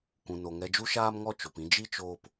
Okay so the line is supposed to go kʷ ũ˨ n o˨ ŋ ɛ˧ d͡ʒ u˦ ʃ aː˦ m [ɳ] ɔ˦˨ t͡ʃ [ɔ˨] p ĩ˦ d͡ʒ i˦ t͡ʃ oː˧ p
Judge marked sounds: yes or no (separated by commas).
no, no